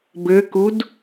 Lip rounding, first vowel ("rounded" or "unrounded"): unrounded